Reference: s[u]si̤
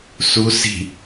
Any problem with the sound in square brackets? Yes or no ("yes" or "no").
no